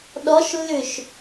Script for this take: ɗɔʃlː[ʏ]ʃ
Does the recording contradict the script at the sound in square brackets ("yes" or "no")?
no